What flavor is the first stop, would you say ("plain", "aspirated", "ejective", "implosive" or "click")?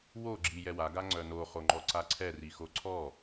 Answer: click